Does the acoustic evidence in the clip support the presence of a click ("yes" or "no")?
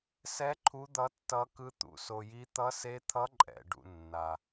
yes